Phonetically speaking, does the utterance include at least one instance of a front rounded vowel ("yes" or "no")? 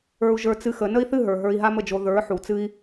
no